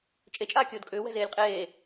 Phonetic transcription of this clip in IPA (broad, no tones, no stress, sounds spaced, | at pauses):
t͡ʃʼ e t͡ʃʼ aː kʲ oː d kʼ ʏː w ɛ̤ z eː lʲ qʼ eː